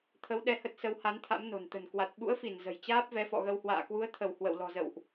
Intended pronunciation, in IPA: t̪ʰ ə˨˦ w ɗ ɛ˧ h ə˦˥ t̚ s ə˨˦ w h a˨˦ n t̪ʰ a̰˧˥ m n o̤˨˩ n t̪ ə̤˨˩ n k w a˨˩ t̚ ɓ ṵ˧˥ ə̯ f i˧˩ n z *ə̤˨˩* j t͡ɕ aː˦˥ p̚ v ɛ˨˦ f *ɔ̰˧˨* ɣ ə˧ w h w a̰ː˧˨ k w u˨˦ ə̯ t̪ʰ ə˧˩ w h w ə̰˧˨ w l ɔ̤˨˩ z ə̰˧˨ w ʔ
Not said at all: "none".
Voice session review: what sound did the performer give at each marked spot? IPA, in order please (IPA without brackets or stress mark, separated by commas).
ə̤˨˩, ɔ̰˧˨